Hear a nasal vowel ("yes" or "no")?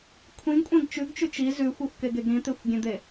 yes